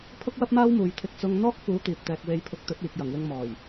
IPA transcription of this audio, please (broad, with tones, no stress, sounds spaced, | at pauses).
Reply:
pʰ ʊ˥ k̚ w ɐ˥ p̚ m aː˥ w m uː˨˧ j t̪ʰ ɪ˧ k̚ t͡s ʊ˥ ŋ n̪ ɔː˥ k̚ f uː˨˥ t̪ iː˨ p̚ t̪ ɛː˧ k̚ w e˧ j pʰ ʊ˧ k̚ t̪ ɵ˨˥ t̚ iː˨ k̚ j ɐ˨˩ ŋ w ɪ˧ ŋ m ɔː˨˩ j